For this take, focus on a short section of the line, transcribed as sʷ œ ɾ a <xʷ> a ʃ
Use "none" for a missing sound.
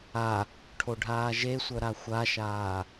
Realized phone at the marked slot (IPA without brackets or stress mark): xʷ